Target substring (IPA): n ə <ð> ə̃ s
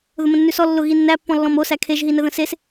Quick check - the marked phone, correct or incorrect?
correct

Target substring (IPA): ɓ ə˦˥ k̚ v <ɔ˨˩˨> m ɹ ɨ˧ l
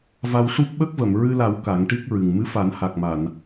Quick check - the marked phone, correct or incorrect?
incorrect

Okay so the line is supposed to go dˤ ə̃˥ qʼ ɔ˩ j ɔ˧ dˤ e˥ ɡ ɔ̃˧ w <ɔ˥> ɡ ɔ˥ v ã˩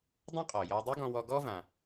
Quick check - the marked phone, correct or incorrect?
incorrect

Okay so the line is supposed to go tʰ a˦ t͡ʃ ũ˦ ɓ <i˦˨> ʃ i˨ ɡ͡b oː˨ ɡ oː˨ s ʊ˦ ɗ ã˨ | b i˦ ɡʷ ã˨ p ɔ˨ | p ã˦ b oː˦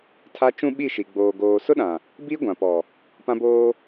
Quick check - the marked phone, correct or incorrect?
correct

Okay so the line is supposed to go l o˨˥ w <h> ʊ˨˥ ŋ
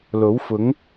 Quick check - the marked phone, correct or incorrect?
incorrect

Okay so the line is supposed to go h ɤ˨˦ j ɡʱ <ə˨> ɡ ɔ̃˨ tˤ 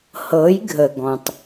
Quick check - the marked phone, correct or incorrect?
correct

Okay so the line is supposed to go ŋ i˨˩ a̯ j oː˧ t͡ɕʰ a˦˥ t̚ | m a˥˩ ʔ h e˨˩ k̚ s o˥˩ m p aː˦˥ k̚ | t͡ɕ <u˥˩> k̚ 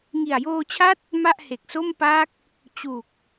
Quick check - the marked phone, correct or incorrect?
incorrect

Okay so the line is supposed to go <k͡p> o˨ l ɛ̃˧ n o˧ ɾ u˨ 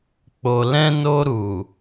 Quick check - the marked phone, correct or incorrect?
correct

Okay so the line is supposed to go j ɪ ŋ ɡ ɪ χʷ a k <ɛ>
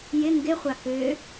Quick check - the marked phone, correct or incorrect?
incorrect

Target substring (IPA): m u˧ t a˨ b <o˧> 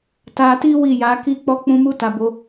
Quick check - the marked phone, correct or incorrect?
correct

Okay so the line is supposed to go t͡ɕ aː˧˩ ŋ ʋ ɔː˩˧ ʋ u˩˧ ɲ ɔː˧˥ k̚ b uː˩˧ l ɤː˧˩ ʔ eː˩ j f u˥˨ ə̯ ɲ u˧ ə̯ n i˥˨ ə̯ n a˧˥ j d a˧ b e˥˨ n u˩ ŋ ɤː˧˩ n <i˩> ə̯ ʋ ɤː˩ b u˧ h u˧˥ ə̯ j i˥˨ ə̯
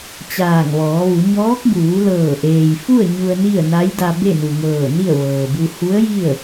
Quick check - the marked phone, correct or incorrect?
incorrect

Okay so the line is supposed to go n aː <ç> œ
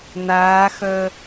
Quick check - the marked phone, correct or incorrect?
incorrect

